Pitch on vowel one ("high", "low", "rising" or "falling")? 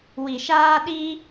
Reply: low